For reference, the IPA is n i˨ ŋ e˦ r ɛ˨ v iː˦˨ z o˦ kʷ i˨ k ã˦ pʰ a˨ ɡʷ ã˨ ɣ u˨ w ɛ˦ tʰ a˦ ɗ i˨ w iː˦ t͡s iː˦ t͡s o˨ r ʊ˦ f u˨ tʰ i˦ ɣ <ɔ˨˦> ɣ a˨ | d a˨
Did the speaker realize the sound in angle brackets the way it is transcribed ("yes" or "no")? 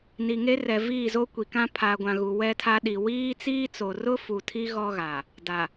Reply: no